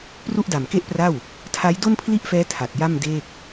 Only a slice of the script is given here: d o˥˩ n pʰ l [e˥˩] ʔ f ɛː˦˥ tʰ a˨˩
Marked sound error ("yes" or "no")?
yes